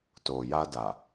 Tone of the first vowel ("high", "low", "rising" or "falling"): low